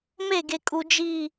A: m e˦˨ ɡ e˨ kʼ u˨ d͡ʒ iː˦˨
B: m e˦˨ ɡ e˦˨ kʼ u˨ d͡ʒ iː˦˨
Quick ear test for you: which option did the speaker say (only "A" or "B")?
A